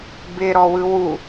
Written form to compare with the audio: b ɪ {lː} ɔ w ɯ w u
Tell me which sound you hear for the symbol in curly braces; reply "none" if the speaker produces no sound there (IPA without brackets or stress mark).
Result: ɾ